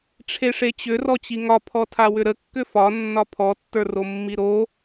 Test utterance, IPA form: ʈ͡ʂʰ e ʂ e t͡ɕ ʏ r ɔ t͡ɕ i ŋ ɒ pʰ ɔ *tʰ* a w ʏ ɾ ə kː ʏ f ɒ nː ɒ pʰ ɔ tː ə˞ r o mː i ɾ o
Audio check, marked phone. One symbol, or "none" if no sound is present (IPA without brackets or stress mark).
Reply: tʰ